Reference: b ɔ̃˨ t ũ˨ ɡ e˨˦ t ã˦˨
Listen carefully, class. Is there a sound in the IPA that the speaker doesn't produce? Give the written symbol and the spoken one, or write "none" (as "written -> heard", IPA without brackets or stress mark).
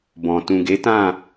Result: none